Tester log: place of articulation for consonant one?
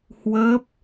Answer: glottal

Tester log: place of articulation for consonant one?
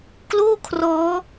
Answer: velar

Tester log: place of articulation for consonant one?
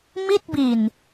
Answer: labial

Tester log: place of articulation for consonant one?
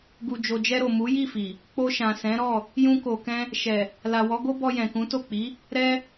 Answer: velar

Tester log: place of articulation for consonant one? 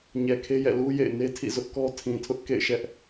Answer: palatal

